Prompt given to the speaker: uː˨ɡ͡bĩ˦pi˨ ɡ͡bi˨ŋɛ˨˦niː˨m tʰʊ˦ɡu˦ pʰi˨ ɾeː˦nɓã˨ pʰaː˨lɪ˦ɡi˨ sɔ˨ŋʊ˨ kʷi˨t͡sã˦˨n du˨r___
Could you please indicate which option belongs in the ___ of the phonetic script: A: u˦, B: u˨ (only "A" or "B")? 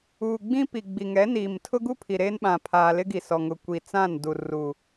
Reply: B